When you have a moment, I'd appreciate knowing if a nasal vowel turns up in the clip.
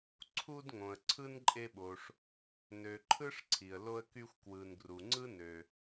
yes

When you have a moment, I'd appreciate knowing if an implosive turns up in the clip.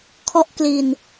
no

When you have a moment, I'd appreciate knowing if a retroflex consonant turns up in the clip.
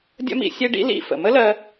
yes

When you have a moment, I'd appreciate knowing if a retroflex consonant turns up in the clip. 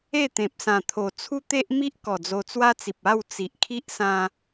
no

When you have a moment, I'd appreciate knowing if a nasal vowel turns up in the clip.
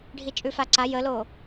no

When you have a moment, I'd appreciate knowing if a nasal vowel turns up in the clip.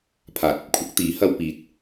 no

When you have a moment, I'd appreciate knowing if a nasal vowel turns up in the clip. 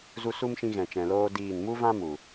yes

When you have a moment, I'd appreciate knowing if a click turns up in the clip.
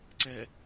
yes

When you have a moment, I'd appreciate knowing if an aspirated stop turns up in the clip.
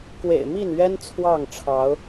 yes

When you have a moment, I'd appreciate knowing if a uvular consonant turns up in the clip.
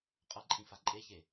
yes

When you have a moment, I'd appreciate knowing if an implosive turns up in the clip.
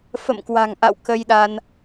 yes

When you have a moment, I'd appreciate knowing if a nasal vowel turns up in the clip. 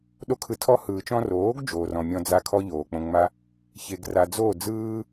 yes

